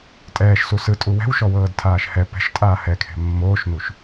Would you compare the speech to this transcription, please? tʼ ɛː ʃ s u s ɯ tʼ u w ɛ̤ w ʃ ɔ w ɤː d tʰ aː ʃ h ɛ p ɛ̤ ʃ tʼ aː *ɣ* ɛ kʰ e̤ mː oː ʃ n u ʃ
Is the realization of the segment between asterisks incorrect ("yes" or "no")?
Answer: yes